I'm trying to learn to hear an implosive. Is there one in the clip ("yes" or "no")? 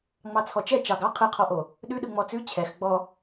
yes